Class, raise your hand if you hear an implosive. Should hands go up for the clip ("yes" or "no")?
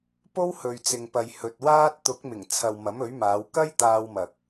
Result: no